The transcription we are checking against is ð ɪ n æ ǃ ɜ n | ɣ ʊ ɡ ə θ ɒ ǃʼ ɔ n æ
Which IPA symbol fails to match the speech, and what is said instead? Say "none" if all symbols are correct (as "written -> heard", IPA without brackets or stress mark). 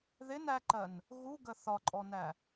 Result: ʊ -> u